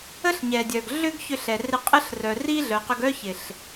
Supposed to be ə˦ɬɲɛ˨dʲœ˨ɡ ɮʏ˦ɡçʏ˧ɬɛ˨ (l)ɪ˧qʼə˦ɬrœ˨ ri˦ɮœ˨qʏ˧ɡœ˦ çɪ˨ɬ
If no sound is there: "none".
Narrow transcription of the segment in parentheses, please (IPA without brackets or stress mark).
r